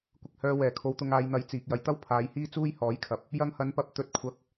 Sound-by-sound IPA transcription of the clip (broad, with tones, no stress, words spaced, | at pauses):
kʷɪ˧k̚hœː˧wɛː˨˩ kʰo˧wt̪ʊ˧ŋ aː˨˧jn̪ɐ˨˥j t͡siː˨k̚ jɐ˨jt̪ɐ˥w pʰaː˨˧jhiː˥t͡suː˥j hɔː˨˥jkʰɐ˨˥p̚ | jɐ˧ŋhɐ˨˧npɐ˨p̚ t̪ɵ˨˥t̚ kʷʰɐ˨˥k̚